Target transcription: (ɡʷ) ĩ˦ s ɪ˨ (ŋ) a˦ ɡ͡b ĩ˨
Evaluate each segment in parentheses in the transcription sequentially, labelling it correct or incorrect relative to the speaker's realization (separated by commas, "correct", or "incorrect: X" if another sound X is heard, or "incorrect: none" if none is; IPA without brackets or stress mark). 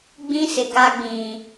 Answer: incorrect: ɡ͡b, incorrect: ɡ